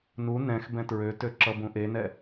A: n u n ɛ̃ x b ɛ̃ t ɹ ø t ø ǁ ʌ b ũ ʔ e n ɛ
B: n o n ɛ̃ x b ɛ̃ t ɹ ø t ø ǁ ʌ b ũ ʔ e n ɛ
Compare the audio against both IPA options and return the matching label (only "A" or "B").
A